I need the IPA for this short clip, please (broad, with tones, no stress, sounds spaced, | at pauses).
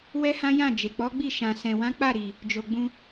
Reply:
w ɛ˦ h ã˦ j ã˦˨ d͡ʒ e˨ k͡p ɔ˨˦ ɡ͡b i˦˨ ʃ ã˨ s ɛ̃˨ w ã˨˦ k͡p a˦˨ ɾ i˨ | d͡ʒ o˨ ɡ͡b ũ˧